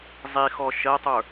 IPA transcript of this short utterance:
zˤ i x ɔ ʃ ɜ tˤ ə˞

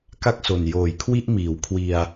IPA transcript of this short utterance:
k a˥˩ k̚ s o˨˩ n j oː˨˩ j kʰ w i˥˩ ʔ m iː˩˦ w kʰ w i˧ a̯

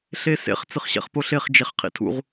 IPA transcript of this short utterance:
ɬ e s ḛ χ t͡s ɨ χ ɕ ɛ̰ χ p o ɬ e χ d͡ʒ e χ qʰ ḭ tʰ ṵ ʁ

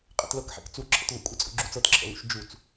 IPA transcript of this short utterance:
qʼ ɛ̰ t l ɤ k ħ ɛ̰ k t͡s u ǁʰ ə̰ t v ə̰ kʷʼ ə t͡sʼ ṵ ɡ͡ǁ u t͡s ɤ t ǁʰ ə̰ l ṵ ʃ d͡ʒ u t͡s

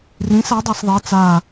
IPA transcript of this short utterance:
r ĩ s a dˤ a s ðˤ e t͡s a

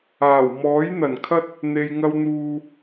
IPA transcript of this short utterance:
aː˨˩ w m ɔː˨˥ j n̪ ɐ˨˩ n kʰ ɐ˥ t̚ | n̪ e˧ j ŋ ɐ˥ w n̪ uː˧

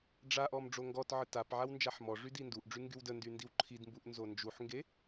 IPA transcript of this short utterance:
ɖ͡ʐ a ʔ ɔ m ɖ͡ʐ o ŋ ɡ ɔ t ʕ ə t a p ʕ a w n d͡ʒ a ħ m ɔ ʐ y d i n d u ʔ ɖ͡ʐ y ŋ ɡ y w d ə n d y n d i w ǃʰ i d m b u ʔ n z o n d͡ʒ u ħ ŋ ɡ e

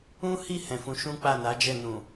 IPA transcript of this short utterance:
ũ˦ h i˦˨ h ɛ̃˨ f ũ˨˦ ʃ ũ˦ k͡p a˦˨ n a˨˦ d͡ʒ ɛ˦˨ n ũ˨

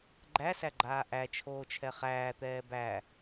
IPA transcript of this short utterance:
ɡ͡ǃ æ s æ ɡ͡ǃ aː ʔ æ t͡ʃʰ oː t͡ʃʰ ɛ χ æː t̪ ɛː b æ

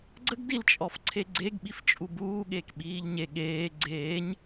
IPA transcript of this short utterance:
ɡ͡ǀ ə ɡ d i l t͡ʃʼ ɔ f ǀʰ e ɡ͡ǀ e ɡ ɓ i f t͡ʃʼ u b uː ɠ eː k ɓ iː ʎ ɲ e ɠ eː ɡ͡ǀ eː ɲ

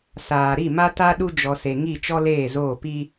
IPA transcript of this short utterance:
s aː˨ ɾ i˦˨ m a˦ t a˦ ɗ u˦ d͡ʒ ɔ˨ s e˨ ŋ i˦˨ t͡ʃ ɔ˦ l eː˦˨ z oː˦˨ p i˦

